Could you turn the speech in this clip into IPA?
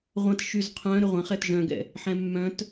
ʁʷ ɐ̃ t ʃ y z qʰ œ̃ ɾ ʏ ʁʷ ɐ̃ χ ɛ t ʒ œ̃ ɡ ɛ̰ | ħ ɛ̃ mː œ̃ t

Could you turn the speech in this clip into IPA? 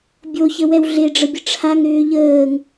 bʲ o ç ə w ɛ w ɮ e ɖ͡ʐ ə bʲ ə ʈ͡ʂʰ a ŋ ɾ ʏː ʎ əː ŋ

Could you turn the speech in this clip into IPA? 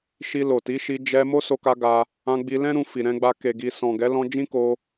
ʃ i˧ l o˨ t i˨˦ ʃ i˧ d͡ʒ ɛ˧ m o˦ s o˧ k a˧ ɡ a˧ | ã˧ ɡ͡b i˧ l ɛ̃˦ ɾ ũ˧ f i˨ ɾ ɛ̃˧ ɡ͡b a˧ k e˨ ɡ i˨ s ɔ̃˨ ɡ ɛ˨˦ l ɔ̃˧ d͡ʒ ĩ˦ k o˧

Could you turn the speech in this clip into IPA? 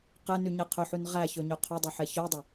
q ɛ n y ɲ ɛ qʰ ɵ ħ ʉ n ʁ æ ç ɵ ɲ ɵ qʰ ɵ dˤ ø ħ ɛ ç œ dˤ ɵ

